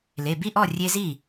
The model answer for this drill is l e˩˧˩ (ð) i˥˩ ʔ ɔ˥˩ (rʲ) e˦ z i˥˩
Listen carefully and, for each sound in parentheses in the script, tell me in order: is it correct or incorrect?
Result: incorrect: b, correct

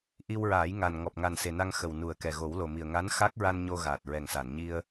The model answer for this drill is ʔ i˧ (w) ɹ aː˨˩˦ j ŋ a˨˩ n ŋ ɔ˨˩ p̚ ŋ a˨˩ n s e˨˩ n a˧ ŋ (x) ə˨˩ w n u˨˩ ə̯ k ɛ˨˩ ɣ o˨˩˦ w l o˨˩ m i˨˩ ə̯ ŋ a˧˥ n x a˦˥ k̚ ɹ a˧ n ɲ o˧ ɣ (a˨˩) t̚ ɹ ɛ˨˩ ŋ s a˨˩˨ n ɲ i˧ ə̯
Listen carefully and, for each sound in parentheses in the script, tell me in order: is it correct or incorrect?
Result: correct, correct, incorrect: aː˨˩

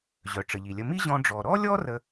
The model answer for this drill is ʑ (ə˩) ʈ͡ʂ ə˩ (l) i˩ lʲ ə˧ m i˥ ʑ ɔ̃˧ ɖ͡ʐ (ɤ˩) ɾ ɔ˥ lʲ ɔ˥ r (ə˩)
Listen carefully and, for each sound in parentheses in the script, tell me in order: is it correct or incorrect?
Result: incorrect: œ˩, incorrect: ʎ, incorrect: ɔ˩, incorrect: ə˥

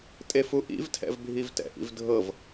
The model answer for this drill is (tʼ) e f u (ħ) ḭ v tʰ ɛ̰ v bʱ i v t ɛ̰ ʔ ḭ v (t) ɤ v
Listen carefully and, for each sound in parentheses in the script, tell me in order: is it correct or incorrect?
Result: correct, incorrect: ʔ, incorrect: dʱ

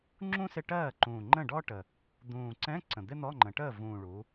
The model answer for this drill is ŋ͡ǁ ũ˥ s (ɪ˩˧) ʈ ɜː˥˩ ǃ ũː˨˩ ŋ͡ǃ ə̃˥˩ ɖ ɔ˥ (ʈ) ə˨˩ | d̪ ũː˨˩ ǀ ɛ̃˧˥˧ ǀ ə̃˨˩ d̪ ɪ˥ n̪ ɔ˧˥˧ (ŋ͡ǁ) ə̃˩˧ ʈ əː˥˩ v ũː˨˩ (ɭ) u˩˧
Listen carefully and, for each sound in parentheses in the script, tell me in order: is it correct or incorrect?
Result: incorrect: ɪ˧˥˧, correct, incorrect: ŋ͡ǃ, correct

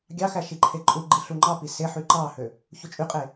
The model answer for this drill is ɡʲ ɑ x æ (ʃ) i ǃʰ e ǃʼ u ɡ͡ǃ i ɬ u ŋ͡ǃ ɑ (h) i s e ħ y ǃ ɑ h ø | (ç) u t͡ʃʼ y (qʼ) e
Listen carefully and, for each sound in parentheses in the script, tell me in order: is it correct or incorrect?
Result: correct, incorrect: p, correct, correct

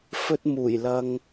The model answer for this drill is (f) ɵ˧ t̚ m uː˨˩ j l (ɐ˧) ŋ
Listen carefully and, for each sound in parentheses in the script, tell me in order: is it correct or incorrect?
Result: correct, correct

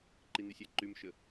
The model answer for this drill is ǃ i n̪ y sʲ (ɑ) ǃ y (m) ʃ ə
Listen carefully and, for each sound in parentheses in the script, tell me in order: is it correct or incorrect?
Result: incorrect: a, correct

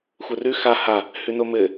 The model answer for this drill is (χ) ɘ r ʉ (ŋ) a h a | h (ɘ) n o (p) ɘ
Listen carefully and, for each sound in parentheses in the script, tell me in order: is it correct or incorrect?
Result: incorrect: xʷ, incorrect: x, incorrect: ʉ, incorrect: m

